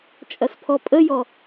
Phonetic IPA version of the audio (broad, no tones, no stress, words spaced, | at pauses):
t͡ʃʼɐspʰɔpʼəjɔ